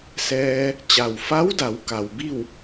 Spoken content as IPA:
s ɛː˧ | t͡ɕ a˩ w f a˧˥ w d a˩˧ w k a˩ w b i˥˨ w

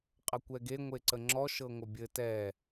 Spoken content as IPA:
qʼ ə kʷ ɛ ɡ e ŋʷ e ǀ ə ŋ͡ǁ ɔ ʃ ɤ ŋʷ œ bʲ ɘ t ɛ

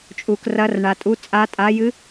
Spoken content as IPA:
t͡ʃʼ u˩ k r ɐ˨˦ r ɳ a˩ tʼ u˨˦ t͡sʼ a˨˦ tʼ a˨˦ j ɨ˨˦

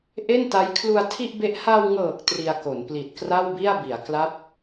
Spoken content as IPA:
ʔ e˥˩ n t a˦˥ j kʰ l u˧ a̯ tʰ i˥˩ ʔ b e˦˥ ʔ h a˧ w ŋ ɤː˨˩ k̚ t r i˧ a̯ k o˩˦ n p l i˨˩ t̚ k r a˥˩ w b i˥˩ a̯ b i˩˦ a̯ k l a˦˥ p̚

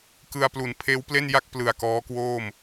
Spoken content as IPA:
k ɯ˧ a̯ p l u˨˩ n pʰ eː˦˥ w p l e˥˩ n j a˥˩ k̚ p l ɯ˨˩ a̯ k ɔː˦˥ k w oː˥˩ m

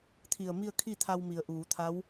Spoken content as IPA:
t̪ʰ i˧˩ ə̯ m i˥˨ ə̯ kʰ i˥˨ t̪ʰ a˧ w m i˩ ə̯ ʔ uː˩˧ t̪ʰ a˧˥ w

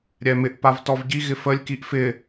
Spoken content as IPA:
ɾʲ ɛ m ɪ ʔ p a v t ɔ v ɟ i ɣ ɪ f ə lʲ k i ʔ f ɪ

